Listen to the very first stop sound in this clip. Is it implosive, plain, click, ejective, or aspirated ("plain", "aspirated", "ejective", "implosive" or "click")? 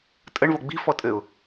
ejective